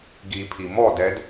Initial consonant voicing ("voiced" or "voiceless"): voiced